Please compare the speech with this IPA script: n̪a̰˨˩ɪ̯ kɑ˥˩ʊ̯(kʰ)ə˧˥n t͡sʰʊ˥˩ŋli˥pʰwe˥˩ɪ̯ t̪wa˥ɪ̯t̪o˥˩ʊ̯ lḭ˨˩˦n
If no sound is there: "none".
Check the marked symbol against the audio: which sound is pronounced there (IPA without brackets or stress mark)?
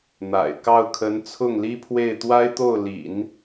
kʰ